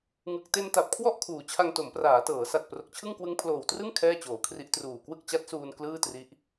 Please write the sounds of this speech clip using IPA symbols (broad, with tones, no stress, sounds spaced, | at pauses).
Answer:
ŋ ɯ˨˩ k̚ t e˧ n t a˨˩ p̚ kʰ w ɔ˥˩ ʔ kʰ uː˨˩ t͡ɕʰ a˧ ŋ t o˩˦ m p r aː˩˦ t ɤː˩˦ s a˨˩ t̚ p r o˨˩ k̚ t͡ɕʰ ɯ˥˩ ŋ k w ɯ˦˥ ŋ pʰ l oː˨˩ w t r ɯ˥˩ ŋ kʰ ɛː˥˩ t͡ɕ oː˩˦ kʰ r i˦˥ ʔ t r uː˨˩ k w ɯ˥˩ k̚ t͡ɕ a˦˥ t̚ s uː˧ n k l ɯː˥˩ t r i˦˥ ʔ